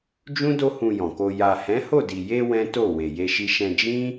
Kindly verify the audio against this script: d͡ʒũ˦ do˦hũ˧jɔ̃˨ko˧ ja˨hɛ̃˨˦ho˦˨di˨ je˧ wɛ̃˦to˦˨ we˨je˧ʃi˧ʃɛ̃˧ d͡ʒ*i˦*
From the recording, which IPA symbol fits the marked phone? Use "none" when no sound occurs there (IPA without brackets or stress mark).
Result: ĩ˦